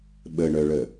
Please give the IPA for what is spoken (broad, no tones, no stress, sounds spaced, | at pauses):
ɓ ə ɳ œ ɭ ə